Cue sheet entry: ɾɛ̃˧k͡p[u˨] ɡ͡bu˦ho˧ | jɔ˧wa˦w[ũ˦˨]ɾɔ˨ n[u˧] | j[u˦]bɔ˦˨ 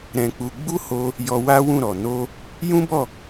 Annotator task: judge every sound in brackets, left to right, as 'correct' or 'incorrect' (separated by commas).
incorrect, correct, incorrect, incorrect